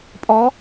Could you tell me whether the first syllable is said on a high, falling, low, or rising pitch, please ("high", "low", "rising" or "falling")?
rising